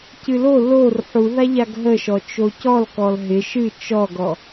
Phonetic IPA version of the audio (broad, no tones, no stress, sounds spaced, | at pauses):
c ɨ l o l o r ħ u ð a ʎ a ɡ ɦ ə ʃ ɔ t͡ʃ o c ɔ l k ɔ l ɦ ɪ ʃ ɨ t͡ʃ ɔ ɡ ɔ